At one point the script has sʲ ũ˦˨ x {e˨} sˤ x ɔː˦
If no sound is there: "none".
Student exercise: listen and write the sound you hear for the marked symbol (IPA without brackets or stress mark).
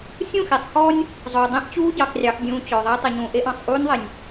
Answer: e˨